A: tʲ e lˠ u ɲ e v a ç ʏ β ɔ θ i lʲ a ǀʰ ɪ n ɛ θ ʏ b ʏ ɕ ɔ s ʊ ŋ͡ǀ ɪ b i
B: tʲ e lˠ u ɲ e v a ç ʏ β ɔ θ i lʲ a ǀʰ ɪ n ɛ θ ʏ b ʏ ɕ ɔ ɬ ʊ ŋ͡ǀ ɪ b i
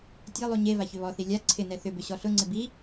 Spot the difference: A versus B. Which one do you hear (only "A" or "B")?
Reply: B